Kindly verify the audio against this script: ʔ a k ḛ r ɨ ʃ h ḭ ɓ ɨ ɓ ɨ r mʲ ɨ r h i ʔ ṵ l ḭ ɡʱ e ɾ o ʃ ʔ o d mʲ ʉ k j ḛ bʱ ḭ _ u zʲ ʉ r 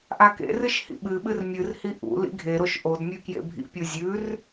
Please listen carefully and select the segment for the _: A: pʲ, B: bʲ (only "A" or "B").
A